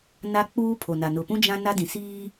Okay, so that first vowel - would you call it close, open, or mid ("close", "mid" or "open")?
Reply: open